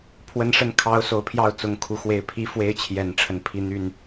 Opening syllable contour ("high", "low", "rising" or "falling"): rising